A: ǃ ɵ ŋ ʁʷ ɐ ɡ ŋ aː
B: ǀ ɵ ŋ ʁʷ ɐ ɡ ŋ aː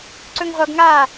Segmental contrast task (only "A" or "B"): B